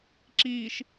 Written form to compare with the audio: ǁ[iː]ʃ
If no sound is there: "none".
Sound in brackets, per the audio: iː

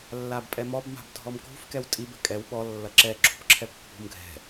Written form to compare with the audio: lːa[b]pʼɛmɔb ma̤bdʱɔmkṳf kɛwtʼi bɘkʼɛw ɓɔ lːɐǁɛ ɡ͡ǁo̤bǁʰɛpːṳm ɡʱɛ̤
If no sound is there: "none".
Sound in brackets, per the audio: b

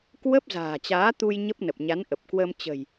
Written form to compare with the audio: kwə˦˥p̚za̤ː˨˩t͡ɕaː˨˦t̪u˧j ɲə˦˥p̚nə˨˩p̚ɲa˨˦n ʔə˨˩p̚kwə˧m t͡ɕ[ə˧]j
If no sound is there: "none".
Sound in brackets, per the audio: ə̤˨˩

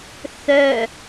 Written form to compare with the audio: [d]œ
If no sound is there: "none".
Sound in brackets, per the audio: θ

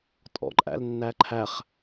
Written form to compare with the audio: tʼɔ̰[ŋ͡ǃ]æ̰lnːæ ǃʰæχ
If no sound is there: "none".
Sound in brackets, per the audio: ǃʼ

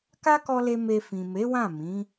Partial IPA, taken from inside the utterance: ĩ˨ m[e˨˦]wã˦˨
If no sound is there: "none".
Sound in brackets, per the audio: e˨˦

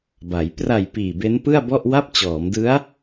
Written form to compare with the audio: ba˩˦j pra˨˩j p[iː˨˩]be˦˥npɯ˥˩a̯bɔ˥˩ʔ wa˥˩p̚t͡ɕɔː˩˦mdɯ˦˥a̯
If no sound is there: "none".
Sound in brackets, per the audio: iː˨˩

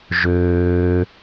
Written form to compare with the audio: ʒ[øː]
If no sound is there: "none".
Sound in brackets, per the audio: øː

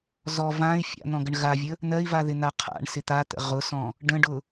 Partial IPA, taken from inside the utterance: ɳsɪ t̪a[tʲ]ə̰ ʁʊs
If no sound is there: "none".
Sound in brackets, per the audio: t̪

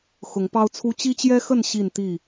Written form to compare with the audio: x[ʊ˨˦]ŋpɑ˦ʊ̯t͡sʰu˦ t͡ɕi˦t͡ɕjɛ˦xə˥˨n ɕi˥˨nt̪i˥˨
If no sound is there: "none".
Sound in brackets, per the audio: ʊ˨˦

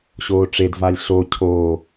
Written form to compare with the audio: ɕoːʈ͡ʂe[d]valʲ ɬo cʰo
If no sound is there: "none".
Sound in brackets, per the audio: d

